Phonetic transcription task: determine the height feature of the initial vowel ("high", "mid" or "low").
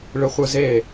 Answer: high